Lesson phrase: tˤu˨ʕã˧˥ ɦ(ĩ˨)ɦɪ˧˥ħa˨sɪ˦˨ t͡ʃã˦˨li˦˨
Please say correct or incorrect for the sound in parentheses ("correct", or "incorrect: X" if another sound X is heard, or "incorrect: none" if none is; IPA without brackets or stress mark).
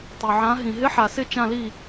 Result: correct